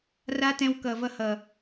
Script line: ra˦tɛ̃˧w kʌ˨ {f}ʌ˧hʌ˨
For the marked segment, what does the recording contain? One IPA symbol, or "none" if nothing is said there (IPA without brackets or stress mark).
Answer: v